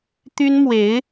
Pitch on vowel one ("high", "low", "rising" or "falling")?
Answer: high